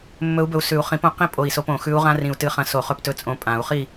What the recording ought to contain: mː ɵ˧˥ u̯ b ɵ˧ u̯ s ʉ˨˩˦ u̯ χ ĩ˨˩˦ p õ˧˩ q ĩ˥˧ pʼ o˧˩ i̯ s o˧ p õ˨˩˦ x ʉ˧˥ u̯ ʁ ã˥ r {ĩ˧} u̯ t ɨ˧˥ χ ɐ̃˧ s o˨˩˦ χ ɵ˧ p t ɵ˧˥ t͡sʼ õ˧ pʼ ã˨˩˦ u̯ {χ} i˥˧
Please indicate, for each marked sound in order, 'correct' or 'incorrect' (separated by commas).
correct, correct